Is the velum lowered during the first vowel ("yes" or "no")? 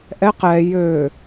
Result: no